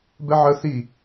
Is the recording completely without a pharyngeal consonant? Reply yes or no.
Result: no